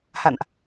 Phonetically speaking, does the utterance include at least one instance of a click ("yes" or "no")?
no